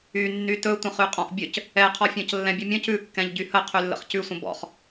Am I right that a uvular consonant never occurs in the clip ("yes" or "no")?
no